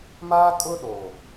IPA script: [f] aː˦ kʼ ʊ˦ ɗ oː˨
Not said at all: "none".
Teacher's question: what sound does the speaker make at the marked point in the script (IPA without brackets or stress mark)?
m